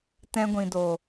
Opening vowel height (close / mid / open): mid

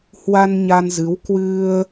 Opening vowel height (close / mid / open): open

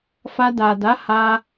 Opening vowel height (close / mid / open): open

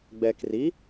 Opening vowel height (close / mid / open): mid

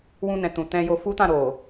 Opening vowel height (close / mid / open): close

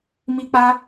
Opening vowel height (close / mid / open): close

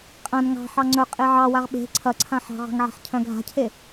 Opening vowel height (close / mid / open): open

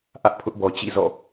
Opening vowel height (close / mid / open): open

